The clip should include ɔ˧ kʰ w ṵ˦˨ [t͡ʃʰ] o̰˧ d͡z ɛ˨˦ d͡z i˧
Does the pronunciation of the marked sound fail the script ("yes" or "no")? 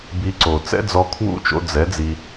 yes